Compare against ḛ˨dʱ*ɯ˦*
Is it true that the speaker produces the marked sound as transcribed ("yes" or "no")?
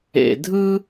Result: yes